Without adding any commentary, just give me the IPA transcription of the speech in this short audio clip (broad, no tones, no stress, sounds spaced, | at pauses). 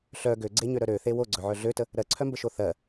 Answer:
ɬ œ ɡ ø ɡ͡ǀ e ɲ ø ɾ œ ɾ ø θ e w o ɡ͡ǀ œ ʕ œ ɮ ø t ə | ɾ ɜ ǀʰ œ m b ə ʃ o θ ɜ